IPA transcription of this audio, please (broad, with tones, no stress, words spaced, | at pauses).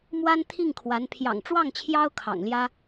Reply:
mwa˥n t̪ʰi˥˩ŋkʰwa˧˥n pʰjɑ̰˨˩ŋ ʈ͡ʂwɑ˥˩ŋt͡ɕʰjɑ˥ʊ̯ kʰɑ̰˨˩ŋljä˥